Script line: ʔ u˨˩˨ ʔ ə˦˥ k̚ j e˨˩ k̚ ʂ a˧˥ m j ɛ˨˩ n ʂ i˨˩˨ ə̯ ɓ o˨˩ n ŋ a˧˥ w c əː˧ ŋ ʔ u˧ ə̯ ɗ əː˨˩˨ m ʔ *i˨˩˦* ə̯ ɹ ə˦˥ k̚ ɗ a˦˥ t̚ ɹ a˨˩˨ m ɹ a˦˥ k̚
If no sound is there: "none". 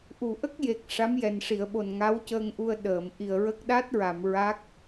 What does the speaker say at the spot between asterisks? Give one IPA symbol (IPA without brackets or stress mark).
i˨˩